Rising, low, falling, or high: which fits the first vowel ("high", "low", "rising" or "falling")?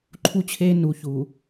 high